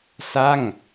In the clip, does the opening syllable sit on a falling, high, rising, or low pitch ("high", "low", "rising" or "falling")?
falling